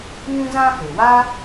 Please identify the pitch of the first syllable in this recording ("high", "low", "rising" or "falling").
high